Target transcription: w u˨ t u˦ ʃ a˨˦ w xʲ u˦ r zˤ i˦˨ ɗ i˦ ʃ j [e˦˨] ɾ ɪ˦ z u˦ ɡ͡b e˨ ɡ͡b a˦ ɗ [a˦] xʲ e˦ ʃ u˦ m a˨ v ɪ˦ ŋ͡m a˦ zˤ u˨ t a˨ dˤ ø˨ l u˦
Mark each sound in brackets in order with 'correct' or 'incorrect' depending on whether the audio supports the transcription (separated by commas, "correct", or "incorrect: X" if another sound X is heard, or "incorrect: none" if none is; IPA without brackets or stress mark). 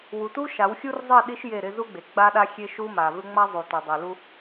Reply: correct, correct